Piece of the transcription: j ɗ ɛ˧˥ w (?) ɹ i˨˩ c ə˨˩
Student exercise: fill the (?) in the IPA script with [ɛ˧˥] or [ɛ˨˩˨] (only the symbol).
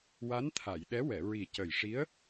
ɛ˨˩˨